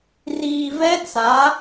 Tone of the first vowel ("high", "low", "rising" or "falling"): low